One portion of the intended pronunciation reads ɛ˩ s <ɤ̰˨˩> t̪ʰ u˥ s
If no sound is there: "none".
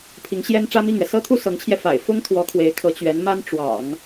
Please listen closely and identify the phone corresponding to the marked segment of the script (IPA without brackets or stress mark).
ɤ˥